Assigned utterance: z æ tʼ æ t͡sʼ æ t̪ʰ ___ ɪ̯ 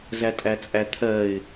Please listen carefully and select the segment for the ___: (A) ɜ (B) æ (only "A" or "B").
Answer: A